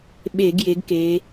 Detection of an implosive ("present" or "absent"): present